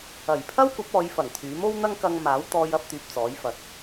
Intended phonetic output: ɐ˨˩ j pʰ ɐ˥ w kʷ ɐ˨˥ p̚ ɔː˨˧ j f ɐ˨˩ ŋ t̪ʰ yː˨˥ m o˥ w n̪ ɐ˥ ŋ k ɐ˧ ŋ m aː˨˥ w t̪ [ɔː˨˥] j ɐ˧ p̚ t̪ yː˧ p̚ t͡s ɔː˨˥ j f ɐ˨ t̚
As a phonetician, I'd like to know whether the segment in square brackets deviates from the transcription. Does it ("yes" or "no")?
yes